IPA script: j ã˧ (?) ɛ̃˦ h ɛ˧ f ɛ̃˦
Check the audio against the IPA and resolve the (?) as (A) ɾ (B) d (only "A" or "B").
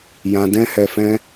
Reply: B